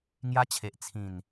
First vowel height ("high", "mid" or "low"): low